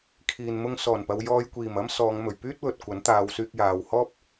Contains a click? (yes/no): no